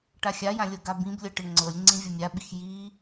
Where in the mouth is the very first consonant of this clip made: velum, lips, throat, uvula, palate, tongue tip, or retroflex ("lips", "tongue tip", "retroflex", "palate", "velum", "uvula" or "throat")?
retroflex